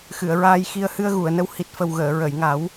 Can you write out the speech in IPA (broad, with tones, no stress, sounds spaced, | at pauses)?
x ɨ˨˩˨ ə̯ ɹ aː˧ j x i˧ ə̯ h ɨ˧ ə̯ ɣ u˨˩˨ ə̯ n ə˧ w h i˨˩ t̚ f ə˨˩ w ɣ əː˨˩˨ ɹ ə˨˩˨ j ŋ a˨˩˦ w